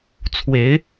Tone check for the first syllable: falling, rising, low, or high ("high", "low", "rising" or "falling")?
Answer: rising